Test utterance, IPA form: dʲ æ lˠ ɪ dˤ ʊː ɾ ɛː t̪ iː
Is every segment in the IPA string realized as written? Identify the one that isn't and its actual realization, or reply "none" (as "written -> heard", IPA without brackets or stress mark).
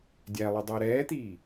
none